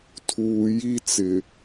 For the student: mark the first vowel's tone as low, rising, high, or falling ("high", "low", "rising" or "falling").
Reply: low